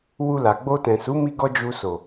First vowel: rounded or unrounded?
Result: rounded